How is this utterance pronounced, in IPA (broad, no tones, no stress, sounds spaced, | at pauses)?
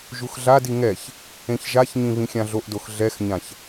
ʒ u x ɮ a d i ŋ ɛ ç | ẽ ç ʒ a ç ɲ ĩ β ĩ xʲ ã ɮ o ʔ d o x ɮ ɛ x ɲ ã ç